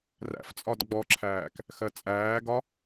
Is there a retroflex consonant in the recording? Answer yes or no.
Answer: no